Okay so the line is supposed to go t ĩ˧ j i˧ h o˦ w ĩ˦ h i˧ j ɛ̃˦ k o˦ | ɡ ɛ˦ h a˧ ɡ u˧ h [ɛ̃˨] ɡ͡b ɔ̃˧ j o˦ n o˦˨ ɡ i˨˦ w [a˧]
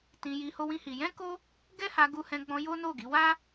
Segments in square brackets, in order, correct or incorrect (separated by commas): incorrect, incorrect